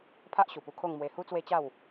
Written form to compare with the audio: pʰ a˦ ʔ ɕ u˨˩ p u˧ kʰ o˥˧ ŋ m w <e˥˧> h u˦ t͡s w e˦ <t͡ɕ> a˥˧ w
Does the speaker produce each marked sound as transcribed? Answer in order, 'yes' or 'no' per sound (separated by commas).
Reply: no, yes